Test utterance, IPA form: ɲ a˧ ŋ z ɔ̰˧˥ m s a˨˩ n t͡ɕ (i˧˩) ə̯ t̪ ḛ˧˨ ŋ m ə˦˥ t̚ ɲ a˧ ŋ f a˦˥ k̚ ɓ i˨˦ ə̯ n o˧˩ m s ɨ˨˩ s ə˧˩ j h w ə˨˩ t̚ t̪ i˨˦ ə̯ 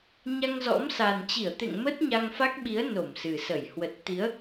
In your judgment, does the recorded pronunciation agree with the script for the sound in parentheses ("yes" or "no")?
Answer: yes